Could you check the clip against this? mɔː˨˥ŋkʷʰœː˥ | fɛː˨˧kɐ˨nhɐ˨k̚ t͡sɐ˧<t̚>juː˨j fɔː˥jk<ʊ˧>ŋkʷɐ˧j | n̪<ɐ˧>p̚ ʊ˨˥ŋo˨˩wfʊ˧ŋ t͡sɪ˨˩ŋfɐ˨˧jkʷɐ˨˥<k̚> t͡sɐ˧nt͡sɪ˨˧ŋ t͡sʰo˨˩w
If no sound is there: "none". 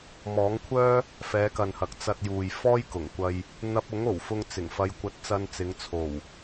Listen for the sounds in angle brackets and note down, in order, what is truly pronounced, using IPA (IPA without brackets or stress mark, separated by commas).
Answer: t̚, ʊ˨˩, ɐ˧, t̚